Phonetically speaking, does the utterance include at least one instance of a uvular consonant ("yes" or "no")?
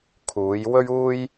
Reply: no